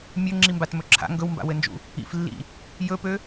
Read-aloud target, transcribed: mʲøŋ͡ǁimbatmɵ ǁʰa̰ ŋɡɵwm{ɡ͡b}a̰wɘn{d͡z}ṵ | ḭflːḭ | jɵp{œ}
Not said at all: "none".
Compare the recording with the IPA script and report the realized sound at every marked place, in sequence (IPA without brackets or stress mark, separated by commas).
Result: b, d͡ʒ, ø